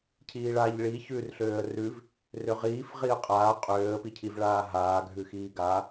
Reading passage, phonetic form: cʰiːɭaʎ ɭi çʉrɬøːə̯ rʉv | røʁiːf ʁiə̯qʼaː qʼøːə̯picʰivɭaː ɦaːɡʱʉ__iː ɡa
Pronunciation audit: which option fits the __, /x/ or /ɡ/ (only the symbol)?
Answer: x